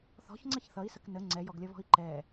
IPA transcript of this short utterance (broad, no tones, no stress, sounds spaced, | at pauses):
θ ɔ̤ ç ŋ͡ǀ ʌ ç θ ʌ i̯ s ə k n ə ŋ͡ǀ ɛ j ɔ ɡ lʲ ʌ β ɔ̤ i̯ ǃ ɛ